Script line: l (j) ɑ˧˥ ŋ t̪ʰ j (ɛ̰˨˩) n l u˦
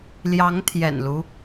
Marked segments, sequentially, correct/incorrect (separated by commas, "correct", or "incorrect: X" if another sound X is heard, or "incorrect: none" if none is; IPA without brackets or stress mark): correct, correct